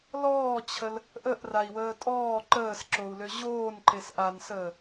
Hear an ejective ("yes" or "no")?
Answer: yes